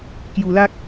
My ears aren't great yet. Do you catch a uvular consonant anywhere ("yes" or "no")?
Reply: no